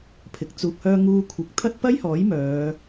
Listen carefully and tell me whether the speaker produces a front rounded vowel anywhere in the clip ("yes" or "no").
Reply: yes